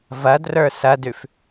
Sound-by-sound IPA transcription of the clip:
v ɐ d r ə˞ s ɐ d ʉ f

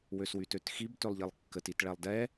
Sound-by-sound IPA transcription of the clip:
w ø s w y t ø t x i b t ø lˠ ʎ i lˠ kː ə t i t ɭ ɛ lˠ d ɛ

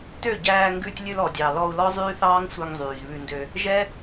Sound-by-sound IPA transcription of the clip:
t ø˦˨ ɟ æː˧ ŋ ɡ ʉ˧ tʲ lʲ ʉ˧ l ɔ˨ dʲ ɑ˨ l ɔ˧ u̯ l ɔ˦ zˤ yː˦ θ ɑː˦ ŋ sʷ œ˧ ŋ zˤ yː˨ z β ʉ˧ n d ø˧ | ʒ ɛ˦

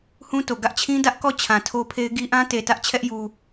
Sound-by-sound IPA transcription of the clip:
h ũ˦ t o˨ ɡ ä˦ ʔ t͡ɕʰ ĩ˦ d ä˦ ʔ k ɔ˦˨ t͡ɕʰ ã˨ tʰ o˦ pʰ e˦ ɪ̯ ɡ i˦ ʔ ã˦ t e˨ t ä˦ ʔ t͡ɕʰ ɛ˦ ʔ j u˦

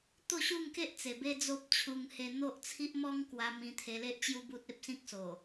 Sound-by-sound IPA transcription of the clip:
t̪ o˥˧ ɕ u˥˧ ŋ k e˦ ʔ t͡s e˨˩ b e˦ d͡z o˦ p̚ t͡ɕʰ u˧ ŋ h e˧ n̪ o˦ ʔ t͡sʰ i˦ ʔ m ɔ˦ ŋ k w a˧ m ĩ˧ t̪ʰ e˧ l e˦ ʔ t͡ɕ j u˦ b u˦ t̚ e˦ p̚ s ĩ˦ k̚ s o˨˩

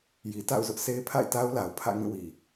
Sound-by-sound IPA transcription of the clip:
j i˨ t a̰˦˨ ʊ̯ z ʊ˦ ʔ sʰ e˦ ɪ̯ pʰ a̰˦˨ ɪ̯ t a˦ ʊ̯ l a˨ ʊ̯ pʰ ä̰˦˨ ŋ ĩ˦˨ w i˨

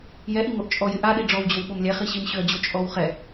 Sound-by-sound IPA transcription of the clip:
j ɛ ʔ i ŋ o ʔ t͡ʃʼ ɔ j ɪ ʔ a ɗ i ɖ͡ʐ ɔ w d͡ʑ o w ɓ o m lʲ ɛ χ i ɕ i m ɕ ʏ ɐ̯ d͡ʑ o t͡ʃʼ ɔ w χ ɛ

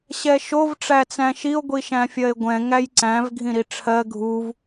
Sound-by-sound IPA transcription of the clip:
ɕ ɛ ʃ o v ʈ͡ʂ æ t͡s æ̃ ʃ i o̯ ɡʷ i ʃ æ̃ fʲ ɜ e̯ ɡʷ ɛ̃ ŋ æ j ǀ æ̃ v ɡʱ ĩ ɾ i ʈ͡ʂʰ ɜ ɡʱ u v

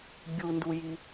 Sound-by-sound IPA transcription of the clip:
bʲ u n d u j i

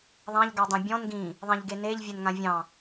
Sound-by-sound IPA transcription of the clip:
ðˤ ã ʎ ɡ ɑ dˤ ẽ bʲ ɔ̃ n ɡ ĩ | ðˤ ẽ ʎ ɡ e n e ʎ vʲ ɛ n ŋ ã vʲ ɑ̃

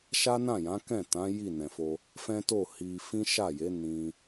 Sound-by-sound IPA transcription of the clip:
ʃ a˦ n ã˦˨ j ã˨˦ k ɛ̃˦˨ t ã˨˦ j i˦˨ n ɛ̃˨ f o˧ | f ɛ̃˦ t o˦˨ h i˧ f ĩ˦ ʃ a˦˨ j e˨˦ n ĩ˧

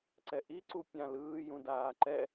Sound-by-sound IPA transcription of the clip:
ǀ ɛ ʔ i ǀ u pʲ ã l ɯː j ũ d aː ǃ ɛ

